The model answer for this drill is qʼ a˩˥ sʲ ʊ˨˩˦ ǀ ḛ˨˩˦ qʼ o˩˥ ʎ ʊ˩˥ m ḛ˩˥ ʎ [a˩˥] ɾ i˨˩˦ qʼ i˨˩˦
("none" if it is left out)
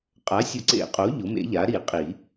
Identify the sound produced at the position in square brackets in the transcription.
a˩˥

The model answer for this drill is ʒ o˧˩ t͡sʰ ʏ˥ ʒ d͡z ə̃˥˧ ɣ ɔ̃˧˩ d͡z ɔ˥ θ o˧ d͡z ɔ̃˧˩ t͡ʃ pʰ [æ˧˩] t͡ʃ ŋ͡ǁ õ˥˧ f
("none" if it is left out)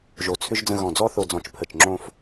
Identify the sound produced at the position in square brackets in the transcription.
ə˧˩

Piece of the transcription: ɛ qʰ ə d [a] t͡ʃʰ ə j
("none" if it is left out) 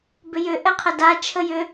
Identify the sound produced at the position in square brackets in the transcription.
a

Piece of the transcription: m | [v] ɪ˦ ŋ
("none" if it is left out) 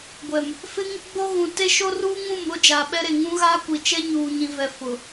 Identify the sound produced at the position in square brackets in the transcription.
f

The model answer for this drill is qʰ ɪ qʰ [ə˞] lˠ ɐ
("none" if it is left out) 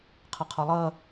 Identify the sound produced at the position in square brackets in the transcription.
ɐ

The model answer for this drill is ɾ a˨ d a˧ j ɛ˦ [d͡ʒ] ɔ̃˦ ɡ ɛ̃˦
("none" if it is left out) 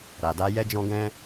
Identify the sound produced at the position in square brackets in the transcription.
d͡ʒ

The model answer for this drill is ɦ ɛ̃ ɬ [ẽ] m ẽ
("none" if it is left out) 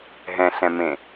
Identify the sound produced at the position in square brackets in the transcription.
ɛ̃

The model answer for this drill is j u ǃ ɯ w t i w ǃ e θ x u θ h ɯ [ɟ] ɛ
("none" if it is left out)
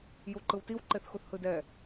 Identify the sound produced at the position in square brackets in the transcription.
d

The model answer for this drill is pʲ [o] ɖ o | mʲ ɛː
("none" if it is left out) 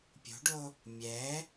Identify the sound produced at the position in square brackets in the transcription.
o̤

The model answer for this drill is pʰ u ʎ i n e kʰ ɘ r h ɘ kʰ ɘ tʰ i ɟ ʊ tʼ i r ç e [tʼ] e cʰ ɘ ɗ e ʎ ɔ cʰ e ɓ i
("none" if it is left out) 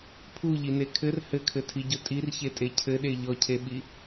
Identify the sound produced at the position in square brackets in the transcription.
tʼ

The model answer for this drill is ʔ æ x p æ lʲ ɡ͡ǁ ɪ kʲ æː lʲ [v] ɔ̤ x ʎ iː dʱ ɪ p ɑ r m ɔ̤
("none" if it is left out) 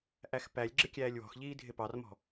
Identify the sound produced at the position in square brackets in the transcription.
w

